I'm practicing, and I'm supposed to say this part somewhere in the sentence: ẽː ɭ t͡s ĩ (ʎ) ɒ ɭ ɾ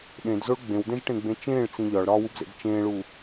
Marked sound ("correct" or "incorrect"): correct